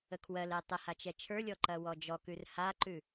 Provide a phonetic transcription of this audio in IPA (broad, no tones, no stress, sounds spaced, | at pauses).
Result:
ə kʰ w ɜ l ɛ tˤ ə h a t͡ʃ ɛ t͡ʃʰ ə˞ lʲ ɔ ǃ ɐ w ɔ d͡ʒ ɔ k ʉ r h a ǃ ʉ